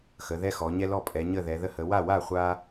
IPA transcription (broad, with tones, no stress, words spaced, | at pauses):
xə˩˧ðɛ˦xɔ˩˧ ɲɛ˦lɔ˥˩ pʼɛ˩˧ɲə˥˩ðɛ˩˧ ðə˦hə˩˧ wa˥˩wa˥˩χʷa˦